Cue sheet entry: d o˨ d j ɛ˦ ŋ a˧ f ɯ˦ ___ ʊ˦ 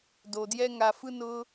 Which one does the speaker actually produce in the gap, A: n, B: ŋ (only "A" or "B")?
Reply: A